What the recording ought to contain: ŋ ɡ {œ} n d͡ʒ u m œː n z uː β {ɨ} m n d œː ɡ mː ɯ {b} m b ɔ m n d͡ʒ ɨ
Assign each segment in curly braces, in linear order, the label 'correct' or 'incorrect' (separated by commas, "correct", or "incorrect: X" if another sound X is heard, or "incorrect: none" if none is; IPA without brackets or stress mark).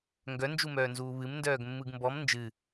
correct, correct, incorrect: ɡ